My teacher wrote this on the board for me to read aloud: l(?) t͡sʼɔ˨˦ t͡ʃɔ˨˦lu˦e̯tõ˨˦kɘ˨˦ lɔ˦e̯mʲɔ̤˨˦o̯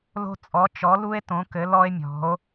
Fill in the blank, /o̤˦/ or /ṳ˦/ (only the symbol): o̤˦